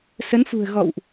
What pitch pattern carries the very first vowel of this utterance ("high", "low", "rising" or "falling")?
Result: rising